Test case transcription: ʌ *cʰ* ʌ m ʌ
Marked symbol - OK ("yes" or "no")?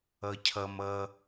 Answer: yes